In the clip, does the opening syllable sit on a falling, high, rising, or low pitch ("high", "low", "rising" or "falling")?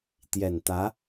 low